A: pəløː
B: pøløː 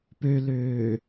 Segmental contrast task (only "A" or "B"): B